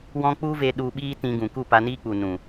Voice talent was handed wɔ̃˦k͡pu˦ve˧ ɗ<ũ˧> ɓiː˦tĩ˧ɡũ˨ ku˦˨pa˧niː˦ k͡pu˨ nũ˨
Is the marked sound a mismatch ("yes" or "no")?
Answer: yes